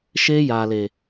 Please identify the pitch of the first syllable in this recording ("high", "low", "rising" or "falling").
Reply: high